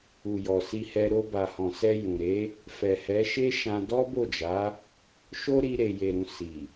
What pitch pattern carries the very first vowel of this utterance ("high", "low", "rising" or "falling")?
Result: low